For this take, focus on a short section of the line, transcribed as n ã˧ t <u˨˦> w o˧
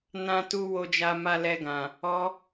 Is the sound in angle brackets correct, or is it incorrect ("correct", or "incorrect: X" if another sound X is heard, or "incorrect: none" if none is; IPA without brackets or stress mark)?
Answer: incorrect: u˧